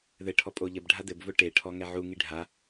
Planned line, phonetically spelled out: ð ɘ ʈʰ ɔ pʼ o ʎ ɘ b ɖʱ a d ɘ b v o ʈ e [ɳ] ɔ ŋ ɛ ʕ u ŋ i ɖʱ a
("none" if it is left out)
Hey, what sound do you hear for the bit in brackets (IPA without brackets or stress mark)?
ʈʰ